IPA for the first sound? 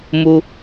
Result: m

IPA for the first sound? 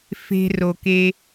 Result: f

